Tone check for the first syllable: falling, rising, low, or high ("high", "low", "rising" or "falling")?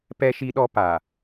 high